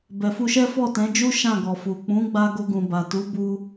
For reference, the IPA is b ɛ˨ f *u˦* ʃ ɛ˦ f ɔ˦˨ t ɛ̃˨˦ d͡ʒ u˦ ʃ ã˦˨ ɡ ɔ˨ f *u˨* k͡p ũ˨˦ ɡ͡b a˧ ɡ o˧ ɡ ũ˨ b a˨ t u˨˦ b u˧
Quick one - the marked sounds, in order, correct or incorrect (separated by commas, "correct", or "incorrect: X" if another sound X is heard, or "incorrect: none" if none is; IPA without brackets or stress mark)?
incorrect: u˧, correct